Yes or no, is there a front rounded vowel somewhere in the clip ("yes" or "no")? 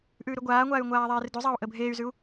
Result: yes